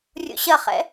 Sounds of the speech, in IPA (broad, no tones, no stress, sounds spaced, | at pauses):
rʲ ṵ ɕ ɐ χ ɛ̰